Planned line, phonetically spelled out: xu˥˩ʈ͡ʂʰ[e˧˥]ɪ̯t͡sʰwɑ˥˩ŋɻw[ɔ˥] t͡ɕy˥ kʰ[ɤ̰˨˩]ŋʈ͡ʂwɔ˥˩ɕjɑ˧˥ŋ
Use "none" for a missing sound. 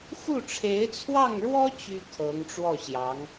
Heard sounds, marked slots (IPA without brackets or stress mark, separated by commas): e˧˥, ɔ˥, ɤ˧˥